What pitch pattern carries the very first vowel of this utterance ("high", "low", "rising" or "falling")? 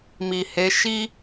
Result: low